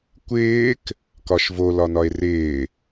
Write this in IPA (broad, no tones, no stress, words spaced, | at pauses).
kʷɪːk | kɒʃvo lɒnɒe̯rɪː